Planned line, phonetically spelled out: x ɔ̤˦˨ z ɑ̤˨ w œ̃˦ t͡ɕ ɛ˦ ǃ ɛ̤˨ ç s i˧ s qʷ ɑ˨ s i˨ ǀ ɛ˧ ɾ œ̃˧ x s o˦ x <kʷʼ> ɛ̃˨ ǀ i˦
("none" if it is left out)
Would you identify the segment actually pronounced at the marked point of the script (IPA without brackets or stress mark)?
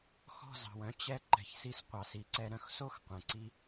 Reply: qʷ